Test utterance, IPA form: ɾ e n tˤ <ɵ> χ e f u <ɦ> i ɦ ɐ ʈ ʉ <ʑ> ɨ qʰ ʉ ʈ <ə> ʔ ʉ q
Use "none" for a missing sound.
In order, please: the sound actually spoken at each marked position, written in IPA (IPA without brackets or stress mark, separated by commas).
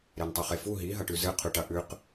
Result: ɵ, ɦ, z, ɐ